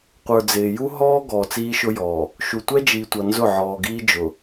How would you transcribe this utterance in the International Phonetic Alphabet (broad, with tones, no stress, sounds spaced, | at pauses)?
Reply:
qʷ ə˞˨ d͡z ɪː˨ j u˦ ɦ ɔː˦ ɡ ɔː˨ t͡s iː˦ ʃ ʊ˦ j ɔː˨ | ʃ u˨ tʷ ɛ˦ d͡ʒ iː˨ tʷ ʌ˨ n z ʊ˦˨ ʕ ɔː˨ ɡ iː˦ d͡ʒ ʊ˨